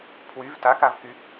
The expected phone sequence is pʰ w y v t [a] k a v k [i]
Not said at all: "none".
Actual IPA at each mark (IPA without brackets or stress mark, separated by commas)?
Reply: a, y